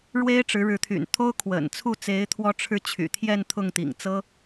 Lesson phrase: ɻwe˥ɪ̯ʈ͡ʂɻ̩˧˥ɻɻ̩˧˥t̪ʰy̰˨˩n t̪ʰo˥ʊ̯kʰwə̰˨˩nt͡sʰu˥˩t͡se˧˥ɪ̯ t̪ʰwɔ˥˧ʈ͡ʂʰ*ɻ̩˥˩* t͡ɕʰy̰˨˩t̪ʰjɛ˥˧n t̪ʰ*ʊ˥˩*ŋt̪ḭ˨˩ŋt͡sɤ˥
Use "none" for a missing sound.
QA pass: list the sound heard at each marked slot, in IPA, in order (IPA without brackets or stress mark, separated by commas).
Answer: ɻ̩˥˩, ʊ˥˩